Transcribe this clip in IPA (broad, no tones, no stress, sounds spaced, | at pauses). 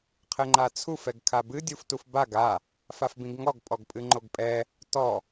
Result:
qʰ ɘ ŋ͡ǃ a t͡sʰ u f ɛ ɡ kʰ a b ɨ dʲ u f t u f b a ɡ a | f a f b ĩ ɡ ŋ ɔ ɡ pʼ ɔ ɡ pʼ ɨ ŋ͡ǃ o ɡ pʼ ɛ | t ɔ